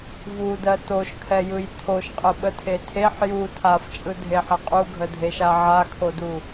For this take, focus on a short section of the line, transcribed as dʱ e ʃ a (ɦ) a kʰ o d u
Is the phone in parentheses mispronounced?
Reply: yes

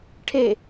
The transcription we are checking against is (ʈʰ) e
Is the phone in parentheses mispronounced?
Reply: no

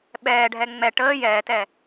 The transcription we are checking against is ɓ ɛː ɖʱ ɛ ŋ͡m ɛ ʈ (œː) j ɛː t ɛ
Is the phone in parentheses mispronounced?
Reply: yes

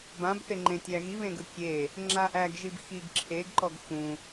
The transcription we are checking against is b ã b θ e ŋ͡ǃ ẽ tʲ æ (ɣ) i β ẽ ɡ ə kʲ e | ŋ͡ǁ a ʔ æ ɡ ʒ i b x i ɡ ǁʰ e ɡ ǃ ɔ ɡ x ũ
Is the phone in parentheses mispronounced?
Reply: no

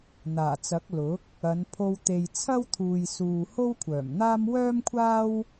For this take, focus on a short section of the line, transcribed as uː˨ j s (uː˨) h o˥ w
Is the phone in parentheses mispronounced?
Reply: no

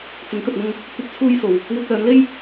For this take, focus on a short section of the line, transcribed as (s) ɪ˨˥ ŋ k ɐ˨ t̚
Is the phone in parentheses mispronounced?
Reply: yes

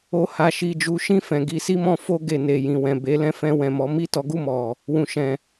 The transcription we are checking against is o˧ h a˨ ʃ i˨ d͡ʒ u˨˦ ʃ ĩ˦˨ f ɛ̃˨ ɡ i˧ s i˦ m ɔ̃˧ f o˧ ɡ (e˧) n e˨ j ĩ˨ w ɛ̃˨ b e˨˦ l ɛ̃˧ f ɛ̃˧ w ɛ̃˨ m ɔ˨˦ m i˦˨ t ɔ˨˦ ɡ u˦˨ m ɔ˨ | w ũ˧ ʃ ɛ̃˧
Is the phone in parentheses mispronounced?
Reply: yes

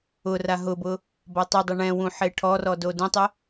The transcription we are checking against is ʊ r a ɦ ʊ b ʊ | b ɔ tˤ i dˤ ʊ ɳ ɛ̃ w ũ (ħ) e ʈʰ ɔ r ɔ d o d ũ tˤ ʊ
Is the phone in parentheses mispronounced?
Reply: no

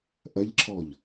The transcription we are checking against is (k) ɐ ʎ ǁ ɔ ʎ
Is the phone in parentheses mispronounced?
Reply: yes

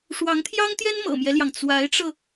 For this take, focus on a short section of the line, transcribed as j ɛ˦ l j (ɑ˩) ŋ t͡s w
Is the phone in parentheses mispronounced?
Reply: no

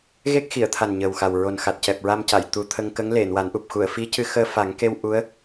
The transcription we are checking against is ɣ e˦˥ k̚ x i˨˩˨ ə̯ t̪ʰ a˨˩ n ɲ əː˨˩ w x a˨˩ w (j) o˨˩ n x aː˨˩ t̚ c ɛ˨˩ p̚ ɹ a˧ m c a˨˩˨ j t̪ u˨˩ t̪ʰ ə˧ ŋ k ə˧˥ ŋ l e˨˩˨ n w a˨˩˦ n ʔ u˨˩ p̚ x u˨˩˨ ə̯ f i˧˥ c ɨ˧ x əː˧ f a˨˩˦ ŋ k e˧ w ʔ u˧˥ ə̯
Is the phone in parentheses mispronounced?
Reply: yes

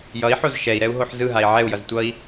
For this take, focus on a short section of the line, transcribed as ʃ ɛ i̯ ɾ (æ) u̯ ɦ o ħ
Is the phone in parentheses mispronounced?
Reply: yes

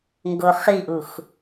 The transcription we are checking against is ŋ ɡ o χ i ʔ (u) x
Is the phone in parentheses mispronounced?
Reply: no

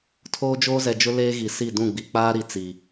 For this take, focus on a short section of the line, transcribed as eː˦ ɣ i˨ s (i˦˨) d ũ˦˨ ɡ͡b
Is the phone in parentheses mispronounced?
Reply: no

